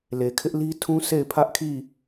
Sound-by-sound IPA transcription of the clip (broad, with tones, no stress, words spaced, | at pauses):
le˨kʰɪ˦ʔ li˦tʰũ˦ sʰe˦˨ɪ̯pʰä˦ʔkʰi˦˨